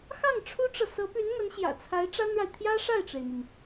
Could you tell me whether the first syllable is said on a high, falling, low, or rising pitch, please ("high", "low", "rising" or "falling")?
falling